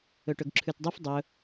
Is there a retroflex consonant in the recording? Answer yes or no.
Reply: yes